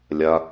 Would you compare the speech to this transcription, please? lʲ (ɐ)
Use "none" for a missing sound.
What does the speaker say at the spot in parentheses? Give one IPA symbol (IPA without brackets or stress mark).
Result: ɐ